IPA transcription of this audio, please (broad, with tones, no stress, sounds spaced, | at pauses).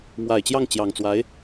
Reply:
m w a˨˩ ɪ̯ t͡ɕ j ɑ˥˩ ŋ t͡ɕ j ɑ˨˩ ŋ t͡s w a˧˥ ɪ̯